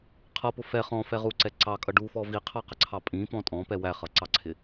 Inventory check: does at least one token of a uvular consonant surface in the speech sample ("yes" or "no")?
yes